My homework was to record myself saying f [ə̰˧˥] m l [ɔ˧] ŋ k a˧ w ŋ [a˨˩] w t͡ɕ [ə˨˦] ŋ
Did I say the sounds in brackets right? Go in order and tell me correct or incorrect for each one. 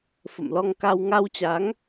incorrect: ə̰˧˨, correct, incorrect: a˧, incorrect: a˨˦

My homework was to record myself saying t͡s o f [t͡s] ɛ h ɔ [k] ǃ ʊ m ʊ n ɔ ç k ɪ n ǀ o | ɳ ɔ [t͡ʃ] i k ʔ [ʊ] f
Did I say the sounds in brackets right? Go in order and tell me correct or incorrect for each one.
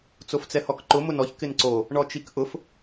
correct, correct, correct, correct

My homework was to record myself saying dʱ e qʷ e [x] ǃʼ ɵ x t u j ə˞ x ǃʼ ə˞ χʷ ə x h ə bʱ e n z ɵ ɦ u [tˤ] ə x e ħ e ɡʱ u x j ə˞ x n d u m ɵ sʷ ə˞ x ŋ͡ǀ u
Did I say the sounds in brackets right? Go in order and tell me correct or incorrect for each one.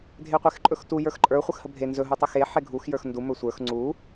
correct, correct

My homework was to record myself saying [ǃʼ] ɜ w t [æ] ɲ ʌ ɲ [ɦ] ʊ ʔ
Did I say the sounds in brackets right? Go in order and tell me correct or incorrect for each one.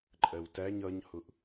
correct, correct, incorrect: h

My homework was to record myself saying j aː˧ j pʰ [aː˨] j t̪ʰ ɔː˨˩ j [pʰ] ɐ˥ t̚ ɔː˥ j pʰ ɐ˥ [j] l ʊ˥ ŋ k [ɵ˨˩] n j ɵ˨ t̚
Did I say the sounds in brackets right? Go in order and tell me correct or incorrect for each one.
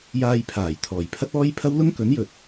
incorrect: aː˨˩, correct, incorrect: w, incorrect: ɵ˨˥

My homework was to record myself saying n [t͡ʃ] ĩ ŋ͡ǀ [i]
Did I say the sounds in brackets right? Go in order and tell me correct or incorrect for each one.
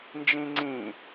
incorrect: d͡ʒ, incorrect: ĩ

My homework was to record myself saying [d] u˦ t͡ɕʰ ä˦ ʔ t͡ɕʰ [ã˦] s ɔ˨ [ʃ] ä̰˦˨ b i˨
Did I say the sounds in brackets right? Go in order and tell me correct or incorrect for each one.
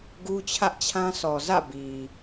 incorrect: ɡ, correct, incorrect: z

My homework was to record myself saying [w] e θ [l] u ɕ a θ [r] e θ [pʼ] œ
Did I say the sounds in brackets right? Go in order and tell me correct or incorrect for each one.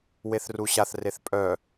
correct, incorrect: r, correct, correct

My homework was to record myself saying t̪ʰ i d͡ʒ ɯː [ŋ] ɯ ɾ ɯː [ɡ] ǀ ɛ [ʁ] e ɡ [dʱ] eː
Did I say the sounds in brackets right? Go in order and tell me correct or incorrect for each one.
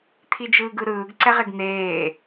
incorrect: ɡ, correct, correct, incorrect: n̪

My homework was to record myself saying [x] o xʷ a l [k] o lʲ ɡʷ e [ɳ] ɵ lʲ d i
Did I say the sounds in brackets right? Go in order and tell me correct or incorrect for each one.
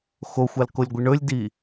correct, correct, correct

